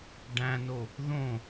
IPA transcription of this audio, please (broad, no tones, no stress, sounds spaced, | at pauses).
ɖ æ̃ n o | ð õ